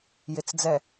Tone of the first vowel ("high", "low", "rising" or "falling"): low